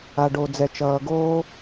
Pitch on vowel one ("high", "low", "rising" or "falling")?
low